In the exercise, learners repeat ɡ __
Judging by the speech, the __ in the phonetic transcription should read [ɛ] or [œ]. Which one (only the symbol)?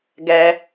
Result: ɛ